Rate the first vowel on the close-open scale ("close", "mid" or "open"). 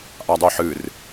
open